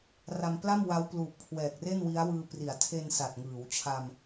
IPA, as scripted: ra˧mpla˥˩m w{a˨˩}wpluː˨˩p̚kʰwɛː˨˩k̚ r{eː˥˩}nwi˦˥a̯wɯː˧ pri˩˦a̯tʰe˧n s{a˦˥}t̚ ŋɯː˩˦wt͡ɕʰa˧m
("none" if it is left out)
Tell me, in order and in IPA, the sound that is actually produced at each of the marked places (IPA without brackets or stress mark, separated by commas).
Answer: a˦˥, e˥˩, a˨˩